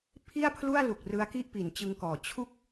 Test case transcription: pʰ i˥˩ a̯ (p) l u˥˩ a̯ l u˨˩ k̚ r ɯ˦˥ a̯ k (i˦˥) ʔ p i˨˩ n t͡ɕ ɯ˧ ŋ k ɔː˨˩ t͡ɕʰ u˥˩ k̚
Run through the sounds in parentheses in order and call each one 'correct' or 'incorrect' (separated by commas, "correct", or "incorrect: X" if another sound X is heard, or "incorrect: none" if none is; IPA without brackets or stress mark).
incorrect: pʰ, incorrect: i˥˩